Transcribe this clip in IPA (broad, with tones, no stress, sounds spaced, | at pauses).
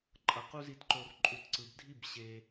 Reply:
ǃʼ ʌ˨ q u˦ z i˧ t ǃ o˧ r ǃʼ u˨ t ǀ ɯ˨ b dʱ i˦˨ b ɕ e˧